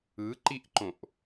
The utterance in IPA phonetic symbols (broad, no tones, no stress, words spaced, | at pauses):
ɯǃiʔǃõʔ